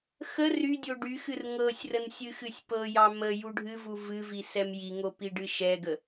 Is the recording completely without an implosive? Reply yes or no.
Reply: yes